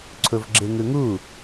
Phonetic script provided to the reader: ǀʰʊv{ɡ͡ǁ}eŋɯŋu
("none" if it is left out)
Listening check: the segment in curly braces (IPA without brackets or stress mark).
ɡ͡ǁ